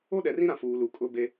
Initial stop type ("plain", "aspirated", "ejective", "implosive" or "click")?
implosive